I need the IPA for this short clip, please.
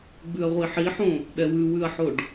ɡ͡b ʉ ɐ̯ ʁʷ i ħ i ħ õ | ɗ ɛ w ʉ w ʉ ɐ̯ ħ o ɖ

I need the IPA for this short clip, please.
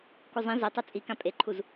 k u zˤ ĩ z e tˤ u t͡sʼ i k ã pʼ e ǃʰ u z

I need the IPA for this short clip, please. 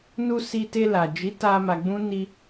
n u˧ s i˧ t e˧ l a˨ d͡ʒ i˨˦ t a˧ m a˧ ɡ͡b ũ˦ n i˧

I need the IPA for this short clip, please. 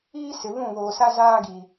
iː˦ s ɪ˨ β ũ˦˨ β oː˨ s a˦ z aː˦ ɡ iː˨

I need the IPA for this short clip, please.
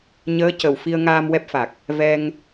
ɲ əː˧˥ c ə˨˩ w f i˧ ə̯ ŋ aː˧ m w ɛ˦˥ p̚ f a˨˩ k̚ | v ɛ˧ ŋ

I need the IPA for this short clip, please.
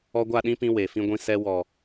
ɔ˧ ɡʷ a˦˨ ɗ ĩ˦ p ĩ˧ w e˨ f ĩ˧ ɡʷ ĩ˧ s ɛ˧ w ɔ˨

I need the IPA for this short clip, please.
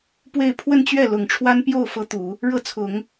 p w e˥˧ ɪ̯ pʰ w ə˥˧ n t͡ɕ ɥ ɛ˥˩ l ʊ˨˩ ŋ ʈ͡ʂʰ w a˥ n p j o˥˩ ʊ̯ f ɤ˥ t̪ u˨˩˦ | ɻ ɤ˥˩ t͡sʰ ʊ˨˩˦ ŋ

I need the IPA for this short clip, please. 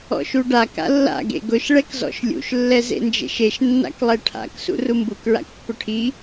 ɔ̰ ʃ u ɖ a k a̰ lː a̰ ɡ ḛ ɡ ʊ ʃ ɭ ɛ k z ɔ̰ ʃ lʲ ṵ ʃ lː ɛ z ḛ n d͡ʒ ḛ ʃ e ʃ nː a̰ k lˠ ɛ ʈʰ a̰ k s ṵ r u m b u k ɹ a̰ k pː ʊ ʈʰ i

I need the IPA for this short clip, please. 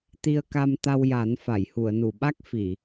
t̪ i˧ ə̯ k a˧ m t̪ a˧ w j a˨˩˦ n f a˨˩˨ j h u˨˩˨ ə̯ n u˨˩˨ ɓ a˦˥ k̚ f i˨˩˨

